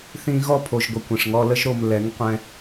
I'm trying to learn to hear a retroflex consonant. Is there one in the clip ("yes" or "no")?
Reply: yes